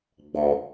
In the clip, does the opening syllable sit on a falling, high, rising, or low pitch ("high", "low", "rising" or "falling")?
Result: low